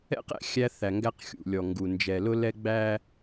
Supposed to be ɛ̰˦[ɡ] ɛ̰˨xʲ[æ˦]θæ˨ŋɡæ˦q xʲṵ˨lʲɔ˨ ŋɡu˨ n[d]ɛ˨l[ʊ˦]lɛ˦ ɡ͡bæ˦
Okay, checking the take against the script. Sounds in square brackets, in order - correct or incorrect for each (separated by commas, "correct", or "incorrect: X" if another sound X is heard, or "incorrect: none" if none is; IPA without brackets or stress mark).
incorrect: q, correct, incorrect: d͡ʒ, correct